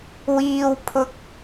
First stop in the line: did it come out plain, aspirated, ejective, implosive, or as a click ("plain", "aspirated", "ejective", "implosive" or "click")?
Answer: aspirated